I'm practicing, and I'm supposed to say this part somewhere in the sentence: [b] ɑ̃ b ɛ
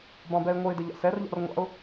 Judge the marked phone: correct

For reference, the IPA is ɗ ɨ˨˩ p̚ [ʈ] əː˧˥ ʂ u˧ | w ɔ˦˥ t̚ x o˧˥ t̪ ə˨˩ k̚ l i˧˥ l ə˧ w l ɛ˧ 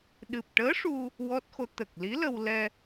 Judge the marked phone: correct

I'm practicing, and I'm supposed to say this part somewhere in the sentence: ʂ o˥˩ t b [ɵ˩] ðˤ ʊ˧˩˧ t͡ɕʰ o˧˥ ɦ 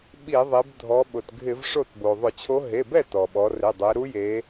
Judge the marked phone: incorrect: o˩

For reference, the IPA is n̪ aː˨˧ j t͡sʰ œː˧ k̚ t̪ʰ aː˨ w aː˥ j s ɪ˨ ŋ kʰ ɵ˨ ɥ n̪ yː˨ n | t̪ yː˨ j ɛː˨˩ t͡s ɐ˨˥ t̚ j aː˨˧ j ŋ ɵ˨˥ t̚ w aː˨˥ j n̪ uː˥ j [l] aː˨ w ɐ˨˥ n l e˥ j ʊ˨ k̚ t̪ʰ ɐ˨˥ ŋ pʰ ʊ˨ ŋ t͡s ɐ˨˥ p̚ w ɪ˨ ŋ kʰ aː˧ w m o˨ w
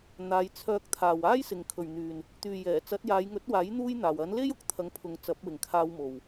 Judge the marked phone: incorrect: n̪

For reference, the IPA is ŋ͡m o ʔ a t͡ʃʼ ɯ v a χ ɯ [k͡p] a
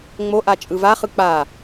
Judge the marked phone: correct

